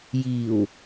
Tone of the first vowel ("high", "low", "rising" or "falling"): low